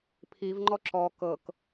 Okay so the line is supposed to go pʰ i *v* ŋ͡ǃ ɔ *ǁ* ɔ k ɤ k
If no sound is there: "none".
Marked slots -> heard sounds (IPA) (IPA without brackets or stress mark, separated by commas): v, ǁ